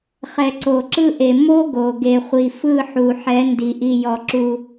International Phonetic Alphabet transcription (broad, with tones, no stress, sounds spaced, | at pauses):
χ ɛ˨ ǀ o˨ ǁ ɯ˦ ʔ e˨ m o˦ ɡ o˨ ɡ e˨ χʷ i˨ f ɯ˦˨ ħ u˨ ħ ɛ˨˦ n d i˨ ʔ i˨ j ɔ˨ ǁ u˨